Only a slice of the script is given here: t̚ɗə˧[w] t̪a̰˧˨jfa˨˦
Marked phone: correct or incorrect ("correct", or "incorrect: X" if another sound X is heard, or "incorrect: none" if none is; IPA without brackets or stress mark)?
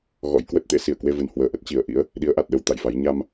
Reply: correct